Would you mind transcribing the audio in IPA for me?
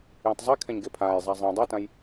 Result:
jẽtˤzˤekʰɛ̃ɲ ɡepʰaːj zˤazˤĩ dˤʌtãj

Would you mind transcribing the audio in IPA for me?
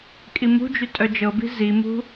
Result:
kʼimṳd͡ʒy tʼœd͡ʒɤbi̤ zimṳ

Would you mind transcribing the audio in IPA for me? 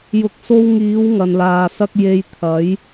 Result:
jʊ˨k̚so˧wŋiː˨˧w ŋɐ˨nlaː˨sɐ˥k̚ je˧j t̪ʰɐ˨˥j

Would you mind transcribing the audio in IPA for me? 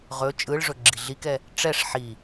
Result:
ʁɵ t͡ʃʼɯɭʐɵ ɡ͡ǁiɮikɛ | ʈ͡ʂɛʂ ħi

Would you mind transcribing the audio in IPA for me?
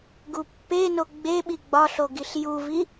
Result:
ɡupːeno ɡ͡beɓi ɡ͡bɒɬo ɡiɬjuvi

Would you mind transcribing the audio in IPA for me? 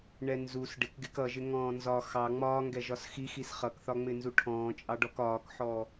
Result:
ɳɛnzus ɖɪkɡɪk ʌʒɪ ŋɔ̃ːnzɒ xɑ ŋ͡mɒːŋɡɛ ʒɒsxixis χʌkθɒ ŋ͡mɪnzuʈʰɔ̃ːt͡ʃʼɑɖ ɔkɒːkħɔ

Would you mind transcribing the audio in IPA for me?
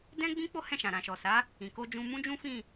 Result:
dɛ̃˦ɡ͡bĩ˦ k͡po˦hɛ̃˦˨ʃã˨ ɾã˨ʃɔ˨ sa˨˦ | ĩ˨ ko˧d͡ʒũ˧ mũ˦d͡ʒũ˦fĩ˦˨

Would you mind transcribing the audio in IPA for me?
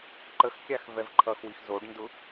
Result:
ǃəxkʲax vɛvǃʰʌxwix zoɖndʊ

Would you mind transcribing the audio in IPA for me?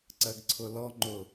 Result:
ǀɜɡǀʰʊlɔŋ͡ǃʊ

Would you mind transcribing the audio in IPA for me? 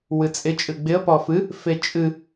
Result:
wɨt͡sʼɪ t͡ʃʼɨɡ͡bɪə̯ pɔfɨ | fet͡ʃʼɨ

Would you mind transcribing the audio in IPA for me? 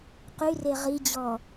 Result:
qyre ʁid͡ʑɔ

